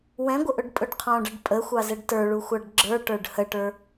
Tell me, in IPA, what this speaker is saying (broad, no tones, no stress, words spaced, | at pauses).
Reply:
wɛ̃ɡʷəʔʊɖpʼʊɖ qʰɔ̃ɖʌɖ pʼəxʷɑzɛɖ tə˞ɭuxʷɑɖ ɡ͡ǁə˞ʈə˞ɖ həʈə˞